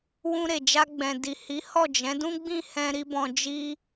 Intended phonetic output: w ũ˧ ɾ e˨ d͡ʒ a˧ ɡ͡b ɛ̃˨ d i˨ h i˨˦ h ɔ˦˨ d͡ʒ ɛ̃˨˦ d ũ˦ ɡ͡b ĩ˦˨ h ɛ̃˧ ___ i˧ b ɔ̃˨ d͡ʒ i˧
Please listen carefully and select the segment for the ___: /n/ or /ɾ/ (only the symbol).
ɾ